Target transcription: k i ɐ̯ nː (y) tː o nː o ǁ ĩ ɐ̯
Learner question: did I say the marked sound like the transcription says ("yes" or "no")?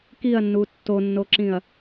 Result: no